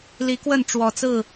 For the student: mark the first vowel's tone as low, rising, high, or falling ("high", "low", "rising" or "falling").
rising